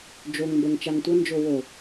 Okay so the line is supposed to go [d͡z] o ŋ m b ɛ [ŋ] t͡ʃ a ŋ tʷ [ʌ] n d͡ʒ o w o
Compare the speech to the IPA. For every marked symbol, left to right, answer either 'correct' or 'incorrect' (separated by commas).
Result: incorrect, correct, correct